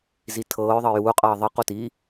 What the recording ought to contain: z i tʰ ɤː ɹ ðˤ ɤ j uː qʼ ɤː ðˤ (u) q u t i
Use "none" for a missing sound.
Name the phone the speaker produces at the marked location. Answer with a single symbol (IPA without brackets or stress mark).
ɯ